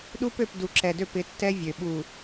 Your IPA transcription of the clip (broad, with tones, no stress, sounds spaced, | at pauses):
ɗ u˦ p ø˦˨ p d u˨ ǁ ɛ˨ d ø˦˨ p ɪ˨˦ tː ɛ˦ vʲ ø˨ ɓ u˨